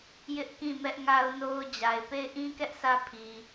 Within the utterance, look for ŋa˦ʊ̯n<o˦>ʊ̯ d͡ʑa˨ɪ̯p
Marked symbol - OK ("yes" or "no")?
yes